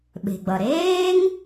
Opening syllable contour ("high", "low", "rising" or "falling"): low